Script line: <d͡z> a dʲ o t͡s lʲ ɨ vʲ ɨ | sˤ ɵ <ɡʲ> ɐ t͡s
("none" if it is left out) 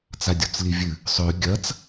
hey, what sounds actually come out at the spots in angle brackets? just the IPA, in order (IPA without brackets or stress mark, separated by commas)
t͡s, ɡʲ